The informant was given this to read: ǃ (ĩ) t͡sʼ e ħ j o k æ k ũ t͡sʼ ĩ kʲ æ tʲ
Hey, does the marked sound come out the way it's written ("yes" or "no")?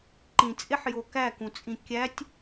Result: yes